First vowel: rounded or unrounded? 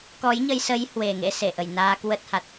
rounded